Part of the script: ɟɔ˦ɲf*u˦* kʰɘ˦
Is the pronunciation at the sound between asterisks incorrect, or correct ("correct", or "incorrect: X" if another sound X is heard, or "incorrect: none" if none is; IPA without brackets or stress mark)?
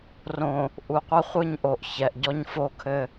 incorrect: o˦